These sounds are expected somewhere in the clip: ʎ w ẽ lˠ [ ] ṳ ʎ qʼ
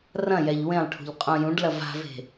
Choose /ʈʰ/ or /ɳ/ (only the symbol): ʈʰ